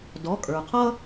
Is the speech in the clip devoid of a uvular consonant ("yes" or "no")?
no